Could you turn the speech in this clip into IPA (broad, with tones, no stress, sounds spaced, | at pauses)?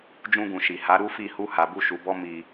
d͡ʒ ũ˧ ɡ ũ˨ ʃ i˨ h a˨˦ ɾ u˦ f i˦˨ h u˧ h a˨ b u˧ ʃ u˨ b ɔ˧ m i˨